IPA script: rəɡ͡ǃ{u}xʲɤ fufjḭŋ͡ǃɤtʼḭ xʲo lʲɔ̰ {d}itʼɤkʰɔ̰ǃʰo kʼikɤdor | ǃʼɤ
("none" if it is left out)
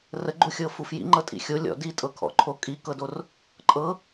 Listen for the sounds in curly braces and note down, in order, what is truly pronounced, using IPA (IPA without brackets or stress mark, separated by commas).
u, d